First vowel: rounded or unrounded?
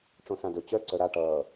rounded